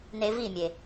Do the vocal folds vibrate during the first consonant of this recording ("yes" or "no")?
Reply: yes